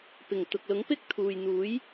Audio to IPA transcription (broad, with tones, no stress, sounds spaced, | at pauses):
p ɪ˨˩ ŋ t̪ ʊ˨ k̚ l ʊ˨˥ ŋ p ɪ˥ k̚ t̪ʰ uː˨ j n̪ uː˨˥ j